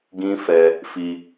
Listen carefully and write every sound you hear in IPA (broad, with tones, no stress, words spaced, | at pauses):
ɡĩ˦fɛ˧ | fi˧